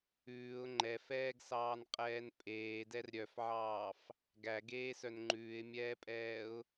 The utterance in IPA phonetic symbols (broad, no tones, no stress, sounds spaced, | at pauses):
ʉː ʊ̯ ŋ͡ǃ ɛ f ɛː ɡ s ɑː n qʼ ɛː n pʼ eː d ɛ r ɾʲ œ f ʕ ɑː f | ɡ æ ɡ eː s œ n ŋ͡ǃ ʉː ɪ̯ mʲ ɛː pʼ ɛː ʊ̯